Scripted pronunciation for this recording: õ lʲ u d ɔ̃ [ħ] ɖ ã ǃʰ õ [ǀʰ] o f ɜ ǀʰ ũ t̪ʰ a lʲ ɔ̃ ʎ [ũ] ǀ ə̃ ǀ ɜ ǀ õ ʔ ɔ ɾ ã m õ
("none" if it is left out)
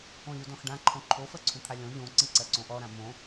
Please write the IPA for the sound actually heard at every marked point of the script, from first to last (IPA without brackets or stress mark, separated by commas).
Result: x, ǃʰ, õ